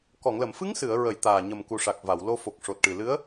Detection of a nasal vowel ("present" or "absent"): absent